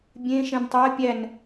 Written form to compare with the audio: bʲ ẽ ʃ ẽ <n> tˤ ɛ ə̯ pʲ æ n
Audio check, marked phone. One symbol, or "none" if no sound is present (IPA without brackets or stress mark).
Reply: n